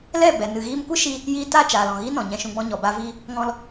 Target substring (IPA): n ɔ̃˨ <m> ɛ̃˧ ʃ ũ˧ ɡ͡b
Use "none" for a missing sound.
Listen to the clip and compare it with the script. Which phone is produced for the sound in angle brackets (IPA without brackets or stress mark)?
ɲ